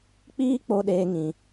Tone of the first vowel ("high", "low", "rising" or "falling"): high